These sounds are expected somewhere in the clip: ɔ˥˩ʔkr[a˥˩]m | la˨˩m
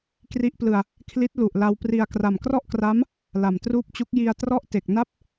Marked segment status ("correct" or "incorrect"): incorrect